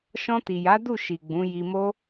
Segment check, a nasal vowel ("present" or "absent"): present